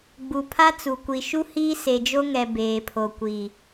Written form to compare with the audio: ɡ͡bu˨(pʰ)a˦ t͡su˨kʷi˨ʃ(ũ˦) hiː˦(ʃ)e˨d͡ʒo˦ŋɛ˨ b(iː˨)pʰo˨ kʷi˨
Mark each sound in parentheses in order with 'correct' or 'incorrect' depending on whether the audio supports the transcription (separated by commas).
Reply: correct, incorrect, incorrect, incorrect